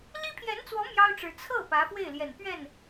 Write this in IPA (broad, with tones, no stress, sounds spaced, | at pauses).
l i˥ pʰ j ɛ˧˥ n t͡s w ɔ˧˥ m j ɑ˥ ʊ̯ ʈ͡ʂ ɻ̩˧˥ t͡sʰ ɤ˥˩ p ä˧˥ f w e˥˩ ɪ̯ l j ɛ˨˩ n p ɥ ɛ˥˩ n